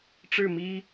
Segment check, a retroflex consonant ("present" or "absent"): present